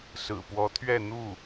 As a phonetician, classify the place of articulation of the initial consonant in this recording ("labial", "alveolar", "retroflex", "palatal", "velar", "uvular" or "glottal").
alveolar